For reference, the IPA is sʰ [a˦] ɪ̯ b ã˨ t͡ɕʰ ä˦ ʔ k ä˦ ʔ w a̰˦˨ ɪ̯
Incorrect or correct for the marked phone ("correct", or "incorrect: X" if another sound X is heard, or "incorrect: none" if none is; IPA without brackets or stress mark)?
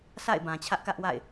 incorrect: a̰˦˨